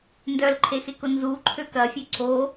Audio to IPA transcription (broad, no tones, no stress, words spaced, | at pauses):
ndœlǃʰexekʊ nzuǃʰøk ɐfʲø ǀo